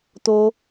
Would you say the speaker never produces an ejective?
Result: yes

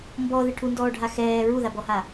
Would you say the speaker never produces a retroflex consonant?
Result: no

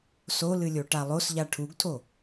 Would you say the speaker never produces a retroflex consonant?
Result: no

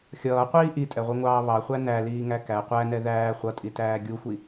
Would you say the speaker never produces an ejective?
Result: no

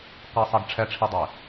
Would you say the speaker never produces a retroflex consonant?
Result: no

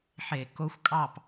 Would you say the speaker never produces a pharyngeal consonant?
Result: no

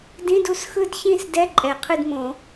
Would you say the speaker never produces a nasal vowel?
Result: no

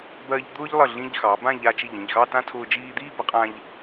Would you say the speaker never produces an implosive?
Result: yes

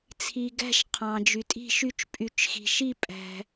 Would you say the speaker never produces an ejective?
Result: no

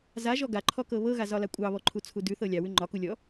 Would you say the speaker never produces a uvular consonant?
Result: yes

